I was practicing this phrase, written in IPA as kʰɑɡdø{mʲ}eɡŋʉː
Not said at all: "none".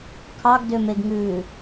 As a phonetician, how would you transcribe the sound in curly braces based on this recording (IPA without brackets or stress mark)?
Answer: m